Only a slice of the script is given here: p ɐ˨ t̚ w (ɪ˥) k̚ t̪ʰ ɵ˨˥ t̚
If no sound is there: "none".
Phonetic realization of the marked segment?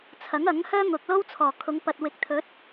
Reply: ɪ˨˥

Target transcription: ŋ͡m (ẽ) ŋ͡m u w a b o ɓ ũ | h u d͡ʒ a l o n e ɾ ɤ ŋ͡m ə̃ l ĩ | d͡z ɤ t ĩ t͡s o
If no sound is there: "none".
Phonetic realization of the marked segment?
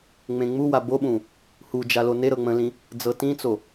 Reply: ẽ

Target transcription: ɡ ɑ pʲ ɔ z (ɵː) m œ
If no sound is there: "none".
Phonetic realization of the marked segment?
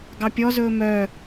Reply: ɵː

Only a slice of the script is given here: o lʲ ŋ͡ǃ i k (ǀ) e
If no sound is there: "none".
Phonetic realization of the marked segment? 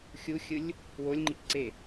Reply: ǀ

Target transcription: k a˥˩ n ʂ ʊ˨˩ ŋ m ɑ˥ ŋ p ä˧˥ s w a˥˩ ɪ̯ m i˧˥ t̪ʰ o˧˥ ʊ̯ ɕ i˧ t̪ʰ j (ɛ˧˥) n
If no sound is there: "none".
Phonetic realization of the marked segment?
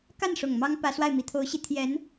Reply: ɛ˧˥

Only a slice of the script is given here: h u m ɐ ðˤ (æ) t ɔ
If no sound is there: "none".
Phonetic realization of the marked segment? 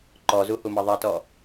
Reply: ɛ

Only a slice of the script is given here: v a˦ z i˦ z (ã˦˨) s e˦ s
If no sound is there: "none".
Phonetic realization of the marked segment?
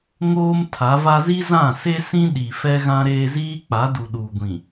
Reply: ã˦˨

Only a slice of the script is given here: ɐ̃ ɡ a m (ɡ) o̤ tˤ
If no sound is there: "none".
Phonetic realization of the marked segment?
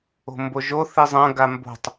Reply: b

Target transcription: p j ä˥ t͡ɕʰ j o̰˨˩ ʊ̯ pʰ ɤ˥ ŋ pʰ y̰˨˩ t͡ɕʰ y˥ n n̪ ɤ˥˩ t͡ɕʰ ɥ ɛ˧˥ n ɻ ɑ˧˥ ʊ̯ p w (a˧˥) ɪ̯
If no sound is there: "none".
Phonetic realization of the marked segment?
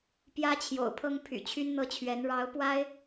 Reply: a˥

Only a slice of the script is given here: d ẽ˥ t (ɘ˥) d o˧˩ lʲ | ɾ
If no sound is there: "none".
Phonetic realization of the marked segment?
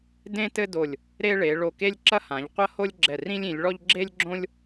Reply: ɘ˥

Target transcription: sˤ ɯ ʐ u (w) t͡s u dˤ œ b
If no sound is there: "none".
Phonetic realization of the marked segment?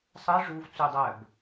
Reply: v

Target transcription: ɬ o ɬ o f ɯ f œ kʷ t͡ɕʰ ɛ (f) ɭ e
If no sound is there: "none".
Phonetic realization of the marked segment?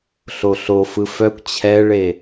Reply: none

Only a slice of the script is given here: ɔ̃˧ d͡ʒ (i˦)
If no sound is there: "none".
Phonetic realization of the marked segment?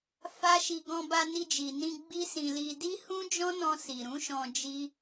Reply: i˦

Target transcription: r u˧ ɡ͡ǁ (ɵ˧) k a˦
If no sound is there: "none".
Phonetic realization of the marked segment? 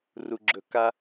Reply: ɵ˧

